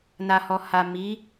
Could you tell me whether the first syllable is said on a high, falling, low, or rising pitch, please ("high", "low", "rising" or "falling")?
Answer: low